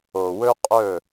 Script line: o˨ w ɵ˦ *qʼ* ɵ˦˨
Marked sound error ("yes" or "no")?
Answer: no